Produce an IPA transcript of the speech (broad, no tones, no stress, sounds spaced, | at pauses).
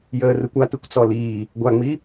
j əː r ɯ kʷ a t ɯ kʷ t͡s ɔ l iː | ɡʷ a ŋ͡m i